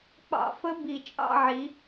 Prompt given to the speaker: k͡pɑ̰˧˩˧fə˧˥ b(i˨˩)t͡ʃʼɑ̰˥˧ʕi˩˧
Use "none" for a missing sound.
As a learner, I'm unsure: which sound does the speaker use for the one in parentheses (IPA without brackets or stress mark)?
i˨˩